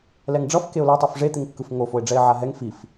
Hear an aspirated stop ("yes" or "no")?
no